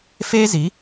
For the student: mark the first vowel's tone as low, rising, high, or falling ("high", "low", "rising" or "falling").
high